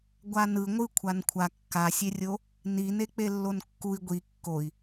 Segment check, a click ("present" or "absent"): absent